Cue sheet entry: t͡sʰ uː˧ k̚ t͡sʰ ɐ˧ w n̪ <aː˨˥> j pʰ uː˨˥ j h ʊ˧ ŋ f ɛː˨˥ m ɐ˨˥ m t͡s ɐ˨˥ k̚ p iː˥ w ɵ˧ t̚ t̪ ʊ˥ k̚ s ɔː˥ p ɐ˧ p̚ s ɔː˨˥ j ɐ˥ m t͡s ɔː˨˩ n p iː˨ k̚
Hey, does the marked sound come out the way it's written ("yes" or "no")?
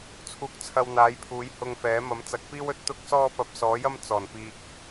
yes